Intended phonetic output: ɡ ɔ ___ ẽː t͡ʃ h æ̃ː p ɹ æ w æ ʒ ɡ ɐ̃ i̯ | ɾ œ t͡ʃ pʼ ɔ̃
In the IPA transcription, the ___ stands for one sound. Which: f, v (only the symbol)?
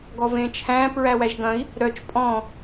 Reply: v